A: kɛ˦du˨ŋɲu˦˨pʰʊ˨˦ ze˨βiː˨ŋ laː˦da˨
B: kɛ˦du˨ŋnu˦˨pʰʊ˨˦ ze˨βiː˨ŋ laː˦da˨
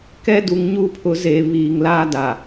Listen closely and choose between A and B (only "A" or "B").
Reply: A